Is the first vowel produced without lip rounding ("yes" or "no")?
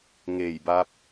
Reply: yes